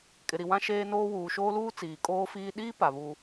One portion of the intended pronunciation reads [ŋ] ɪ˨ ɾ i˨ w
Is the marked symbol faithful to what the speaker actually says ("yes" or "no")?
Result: no